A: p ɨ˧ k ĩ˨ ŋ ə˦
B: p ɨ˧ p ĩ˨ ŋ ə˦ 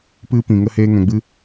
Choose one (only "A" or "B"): B